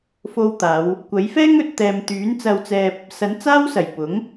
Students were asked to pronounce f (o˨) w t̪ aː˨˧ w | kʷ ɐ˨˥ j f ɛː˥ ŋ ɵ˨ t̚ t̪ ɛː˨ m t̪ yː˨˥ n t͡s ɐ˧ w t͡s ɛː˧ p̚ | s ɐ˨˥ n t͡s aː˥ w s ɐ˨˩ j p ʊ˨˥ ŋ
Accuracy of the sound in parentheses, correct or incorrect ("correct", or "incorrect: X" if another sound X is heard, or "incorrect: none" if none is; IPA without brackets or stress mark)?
incorrect: o˧